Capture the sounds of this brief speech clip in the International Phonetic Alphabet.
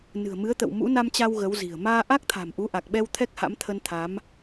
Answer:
n ɨ̤˨˩ ə̯ m ɨ˨˦ ə̯ t̪ ə̰˧˨ w m ṵ˧˥ n a˧ m t͡ɕ a˧ w ɣ ə˨˦ w z i̤˨˩ ə̯ m aː˧ ʔ a˦˥ k̚ t̪ʰ a̤˨˩ m ʔ u˨˦ ʔ a˨˩ k̚ ɓ ɛ˧ w t̪ʰ ɛ˦˥ k̚ h a̰˧˥ m t̪ʰ ə˧ n t̪ʰ a˨˦ m

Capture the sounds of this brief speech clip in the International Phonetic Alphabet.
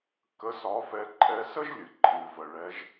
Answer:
k ə˧˥ s ɒ˧˥ f ɛ˧ ǃʼ ɛ˧ s ə˥ ʒ lʲ ɨ˩ ǃʼ ɨ˩ v ə˩ ɭ ɛ˩˧ ʒ

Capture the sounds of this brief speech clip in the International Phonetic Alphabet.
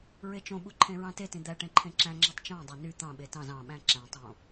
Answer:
ɹ e t͡ʃ õ ɓ u ǃʰ ẽ ɹ ɑ̃ t e t ĩ d̪ æ ʈ ẽ ǃʰ ẽ ǁ æ̃ ŋ͡ǁ æ tˤ t͡ʃ ɑ̃ dˤ æ n y t̪ ɑ̃ ɓ e t ɑ̃ z ɑ̃ ɓ æ̃ ǁ æ̃ tˤ õ

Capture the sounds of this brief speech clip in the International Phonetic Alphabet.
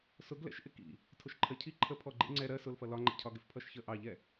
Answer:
s ʊ ɡ l ɛ̰ ʃ ʔ ɪ k ḭ | tʰ ʊ ʃ ǃʰ ɜ cʰ i ǃʰ ə pʰ ɔ ɡ͡ǃ ḭ ŋ͡ǀ ɛ ɾ ɜ s ʊ l f ʌ l ɒ ŋ͡ǃ ɛ̰ cʰ ɒ ɡ ɪ f pʰ ʌ ʃ ç ə ʔ ɑ ʎ ɛ

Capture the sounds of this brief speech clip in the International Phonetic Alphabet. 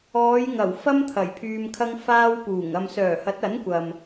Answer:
ɔː˨˧ j ŋ ɐ˨˩ w f ɐ˥ m t̪ʰ ɐ˨˩ j pʰ yː˧ m kʰ ɐ˥ ŋ f aː˥ w p uː˨˩ ŋ ɐ˨ m s œː˨˩ h ɐ˨˥ t̚ ɐ˨˥ n kʷ ɐ˨ m

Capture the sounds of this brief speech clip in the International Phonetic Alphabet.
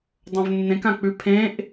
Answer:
dˤ õ v nː ẽ k ã k͡p ʉ pʰ ẽ ʔ

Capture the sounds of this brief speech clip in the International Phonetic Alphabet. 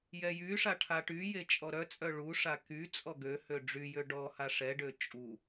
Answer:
j ɛ j y ʂ a ʈʰ a ʈ y j e t͡ʃʼ ɔ ɾ œ t͡sʼ œ ɭ u ʂ a k y t͡sʼ ɔ ɡ ø h ø ɖ͡ʐ y j ø ɖ ɔ h a ʂ ɛ ɖ ø t͡ʃʼ u

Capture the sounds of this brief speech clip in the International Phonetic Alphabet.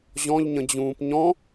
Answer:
ʑ ɔ̃ ʎ ɲ ə̃ d͡ʑ ũː p ɲ ɔ̃

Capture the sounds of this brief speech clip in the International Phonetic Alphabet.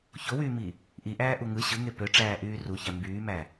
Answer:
ç o w yː m i | ʔ i ʔ æː ʔ u ŋ ɯ ɕ ɯ ŋ e p ø ʈ͡ʂ æː ʔ yː r u ç æ m b yː m æ

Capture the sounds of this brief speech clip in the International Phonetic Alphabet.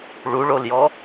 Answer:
ɭ u ɭ o l j ɔ

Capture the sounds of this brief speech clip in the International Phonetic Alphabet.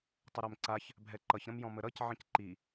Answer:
tˤ ʌ ɾ ɛ m ǀ a ç | bʱ ɛ ǃ ʌ ç ɾ ə̃ m j ɔ̃ m ə ɾ ʌ c ʕ ə̃ c ǃ i

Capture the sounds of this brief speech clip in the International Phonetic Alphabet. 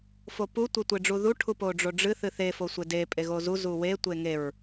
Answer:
f o p u tʷ e tʷ e ɖ͡ʐ u ð u ʈʰ u p o ɖ͡ʐ o ɖ͡ʐ ɨ θ ɨ θ e f o sʷ e d e pʼ e ɣ o z u z u w e tʷ e ŋ e ɹ

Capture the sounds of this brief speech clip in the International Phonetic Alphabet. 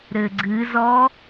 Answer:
ɾ ɘ ɡ͡ǀ ɨ z ɔ

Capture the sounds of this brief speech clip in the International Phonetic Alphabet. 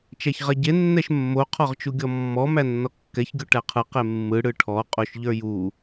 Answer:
t͡ʃ æ ç ʁ ɛ ɟ e nː ɛ ʃ mː o qʰ ɔ ʁ t͡ʃ u ɡʲ ɔ mː ɔ m æ nː ɔ kː ɛ ç ɡʲ o ʈ æ qʰ ɯ q e mː ɯ ɽ ɯ ʈʰ ɔ qʼ o ʃ ʎ ə˞ j u

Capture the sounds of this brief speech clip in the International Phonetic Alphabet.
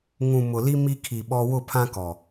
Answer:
ŋ ũ˨ m ʊ˨ l i˦ m i˦ kʰ i˨ ɓ ɔ˦ w ʊ˦˨ pʰ ã˦ k ɔ˨

